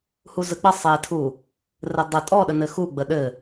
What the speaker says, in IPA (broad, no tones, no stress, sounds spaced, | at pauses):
h u z ə k͡p ə sˤ e tʰ u | r ɘ dˤ ɘ tʼ ɔ ɗ ə n ɘ x u ɡ͡b ə ɗ ɘ